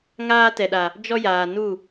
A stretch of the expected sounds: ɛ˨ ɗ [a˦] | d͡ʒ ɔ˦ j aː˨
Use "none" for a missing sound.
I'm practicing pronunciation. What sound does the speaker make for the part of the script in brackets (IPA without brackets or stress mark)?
a˨